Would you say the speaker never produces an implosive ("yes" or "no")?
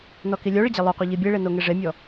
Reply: yes